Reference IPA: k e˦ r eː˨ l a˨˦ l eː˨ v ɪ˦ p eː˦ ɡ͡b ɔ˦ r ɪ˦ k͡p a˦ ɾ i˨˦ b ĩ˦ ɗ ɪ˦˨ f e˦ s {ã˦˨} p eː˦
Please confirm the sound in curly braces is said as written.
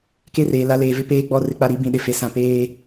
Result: no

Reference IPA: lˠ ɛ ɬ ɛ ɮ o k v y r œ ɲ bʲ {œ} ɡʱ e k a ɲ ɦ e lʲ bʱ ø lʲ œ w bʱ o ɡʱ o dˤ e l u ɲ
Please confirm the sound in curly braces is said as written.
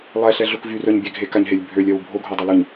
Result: no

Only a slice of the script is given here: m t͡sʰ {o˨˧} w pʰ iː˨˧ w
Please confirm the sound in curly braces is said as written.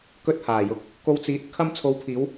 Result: yes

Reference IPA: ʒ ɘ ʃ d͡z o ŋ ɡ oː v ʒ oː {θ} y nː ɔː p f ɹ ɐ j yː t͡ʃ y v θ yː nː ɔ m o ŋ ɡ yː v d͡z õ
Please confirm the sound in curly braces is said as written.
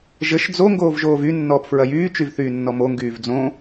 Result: no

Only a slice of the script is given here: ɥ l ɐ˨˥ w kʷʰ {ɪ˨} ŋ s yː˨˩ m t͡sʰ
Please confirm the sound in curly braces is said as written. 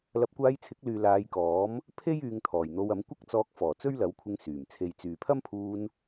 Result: no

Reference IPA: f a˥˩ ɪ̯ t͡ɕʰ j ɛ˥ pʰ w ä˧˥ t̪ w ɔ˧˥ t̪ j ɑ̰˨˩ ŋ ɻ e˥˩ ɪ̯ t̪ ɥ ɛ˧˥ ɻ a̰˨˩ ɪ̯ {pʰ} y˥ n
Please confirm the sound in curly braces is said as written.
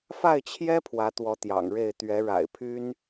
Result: yes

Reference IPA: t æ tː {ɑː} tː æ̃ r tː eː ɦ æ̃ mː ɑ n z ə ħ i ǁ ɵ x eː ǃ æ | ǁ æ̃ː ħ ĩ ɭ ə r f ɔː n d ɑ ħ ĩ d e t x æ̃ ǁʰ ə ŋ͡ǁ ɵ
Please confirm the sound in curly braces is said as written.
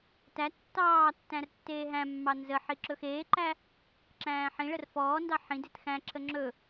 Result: yes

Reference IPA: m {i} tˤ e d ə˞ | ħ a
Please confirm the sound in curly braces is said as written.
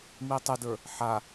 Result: yes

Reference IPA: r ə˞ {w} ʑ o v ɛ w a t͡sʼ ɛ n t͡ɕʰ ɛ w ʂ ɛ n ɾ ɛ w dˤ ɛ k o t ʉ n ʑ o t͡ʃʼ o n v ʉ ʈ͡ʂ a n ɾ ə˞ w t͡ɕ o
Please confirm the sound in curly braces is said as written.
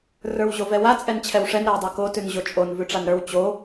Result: yes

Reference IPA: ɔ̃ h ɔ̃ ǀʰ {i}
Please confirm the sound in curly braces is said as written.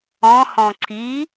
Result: yes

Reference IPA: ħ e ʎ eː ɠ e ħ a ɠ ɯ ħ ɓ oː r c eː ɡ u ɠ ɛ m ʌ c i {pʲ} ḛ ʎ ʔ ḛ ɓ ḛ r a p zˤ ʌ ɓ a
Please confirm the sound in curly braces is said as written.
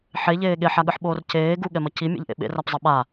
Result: no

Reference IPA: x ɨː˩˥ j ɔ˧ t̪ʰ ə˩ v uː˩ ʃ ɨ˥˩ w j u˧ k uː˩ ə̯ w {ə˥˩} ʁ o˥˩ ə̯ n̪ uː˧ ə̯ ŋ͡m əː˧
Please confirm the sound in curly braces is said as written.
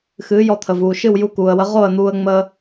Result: no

